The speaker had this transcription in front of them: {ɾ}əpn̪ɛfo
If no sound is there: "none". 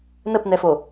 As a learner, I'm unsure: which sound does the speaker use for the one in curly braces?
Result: n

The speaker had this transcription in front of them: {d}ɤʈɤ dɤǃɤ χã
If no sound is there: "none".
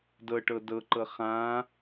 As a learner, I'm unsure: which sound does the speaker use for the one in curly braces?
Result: d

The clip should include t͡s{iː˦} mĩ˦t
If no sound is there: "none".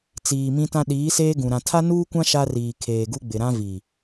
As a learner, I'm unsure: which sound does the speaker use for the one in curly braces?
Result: iː˨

